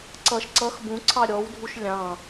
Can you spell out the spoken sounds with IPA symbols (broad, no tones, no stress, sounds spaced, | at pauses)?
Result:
ǀ ʌ ʃ ǀ ʌ x b ũ ǀʰ ɑ ɾʲ ɔ w dʱ u ʃ lʲ ɑ̃